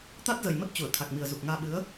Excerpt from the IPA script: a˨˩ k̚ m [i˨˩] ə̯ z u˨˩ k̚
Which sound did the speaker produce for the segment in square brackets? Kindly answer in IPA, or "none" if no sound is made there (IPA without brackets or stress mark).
i˨˩